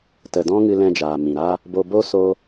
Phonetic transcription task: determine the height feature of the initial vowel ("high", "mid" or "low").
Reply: mid